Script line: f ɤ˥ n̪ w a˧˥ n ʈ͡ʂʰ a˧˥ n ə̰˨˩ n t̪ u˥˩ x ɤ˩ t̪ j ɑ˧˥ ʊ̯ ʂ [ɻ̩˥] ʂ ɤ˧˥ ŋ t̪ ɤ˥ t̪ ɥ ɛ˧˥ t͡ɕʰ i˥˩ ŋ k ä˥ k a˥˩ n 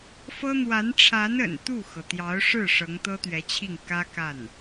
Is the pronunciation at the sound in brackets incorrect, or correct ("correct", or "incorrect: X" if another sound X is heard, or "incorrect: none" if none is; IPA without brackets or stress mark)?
incorrect: ɻ̩˥˩